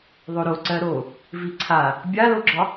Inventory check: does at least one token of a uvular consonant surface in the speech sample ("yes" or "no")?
no